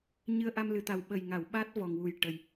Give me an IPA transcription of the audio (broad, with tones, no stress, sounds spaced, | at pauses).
ɲ ɨ˧ ə̯ ʔ a˧ m l ɨ˨˩ t̪ a˨˩ w ɓ ə˨˩ j ŋ a˨˩˨ w ɓ a˦˥ t̚ v ɔ˨˩ ŋ w u˨˩ j ʈ ə˨˩ j